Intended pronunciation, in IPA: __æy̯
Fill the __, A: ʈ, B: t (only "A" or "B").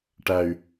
A